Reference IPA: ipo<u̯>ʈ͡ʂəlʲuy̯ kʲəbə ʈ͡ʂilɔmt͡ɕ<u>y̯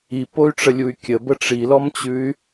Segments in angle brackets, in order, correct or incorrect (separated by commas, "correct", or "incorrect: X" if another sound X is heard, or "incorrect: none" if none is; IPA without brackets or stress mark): incorrect: y̯, incorrect: ʉ